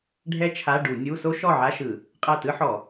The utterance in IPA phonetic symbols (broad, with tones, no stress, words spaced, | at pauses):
ɖʱɛ˥t͡ʃʰa˧˥˧ɖu˧˩˧ nʲu˧˥˧so˥ ʃɔ˥˩ʕa˧˥˧ʃɯ˧˩˧ | qʼa˥˩tɯ˥ħɔ˧˩˧